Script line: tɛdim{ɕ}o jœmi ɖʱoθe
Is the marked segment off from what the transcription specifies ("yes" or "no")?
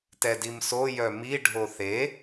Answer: yes